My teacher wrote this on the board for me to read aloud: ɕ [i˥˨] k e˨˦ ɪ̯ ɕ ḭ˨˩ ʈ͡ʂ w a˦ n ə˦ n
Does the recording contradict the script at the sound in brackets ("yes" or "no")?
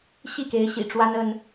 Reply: no